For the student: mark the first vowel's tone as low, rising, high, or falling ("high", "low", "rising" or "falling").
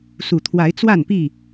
low